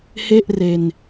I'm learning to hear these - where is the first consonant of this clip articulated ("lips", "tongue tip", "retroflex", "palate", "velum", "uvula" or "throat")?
throat